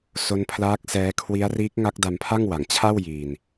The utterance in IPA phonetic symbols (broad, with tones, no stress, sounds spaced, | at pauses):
s o˦˥ n pʰ l aː˦˥ k̚ s ɛː˦˥ kʰ w i˦˥ a̯ r iː˦˥ k̚ ŋ a˦˥ k̚ d a˧ m pʰ a˥˩ ŋ w a˩˦ ŋ t͡ɕʰ a˥˩ w j iː˧ n